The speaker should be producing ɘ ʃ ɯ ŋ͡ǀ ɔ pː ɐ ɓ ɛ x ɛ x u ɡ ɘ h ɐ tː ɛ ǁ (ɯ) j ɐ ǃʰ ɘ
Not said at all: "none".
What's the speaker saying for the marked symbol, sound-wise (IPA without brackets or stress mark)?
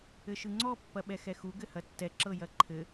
ɤ